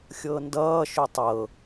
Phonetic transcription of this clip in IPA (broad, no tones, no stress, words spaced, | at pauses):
xʲɤndʌː ʃʏtˤɤ